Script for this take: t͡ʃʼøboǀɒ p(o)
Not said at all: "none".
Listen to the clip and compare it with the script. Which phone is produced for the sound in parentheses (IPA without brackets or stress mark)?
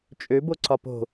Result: o̤